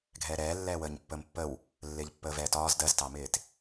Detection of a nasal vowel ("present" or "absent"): absent